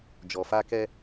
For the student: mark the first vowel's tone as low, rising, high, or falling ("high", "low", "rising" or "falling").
low